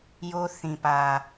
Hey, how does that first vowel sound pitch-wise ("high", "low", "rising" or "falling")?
high